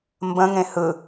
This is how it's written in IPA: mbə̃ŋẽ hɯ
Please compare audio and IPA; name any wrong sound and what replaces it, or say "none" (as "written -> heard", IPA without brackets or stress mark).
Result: none